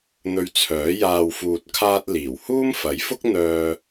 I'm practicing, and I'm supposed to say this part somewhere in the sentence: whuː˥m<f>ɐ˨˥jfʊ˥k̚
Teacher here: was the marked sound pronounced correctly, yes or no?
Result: yes